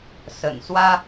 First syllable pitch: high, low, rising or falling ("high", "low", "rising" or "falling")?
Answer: low